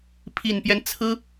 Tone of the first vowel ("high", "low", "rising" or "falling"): low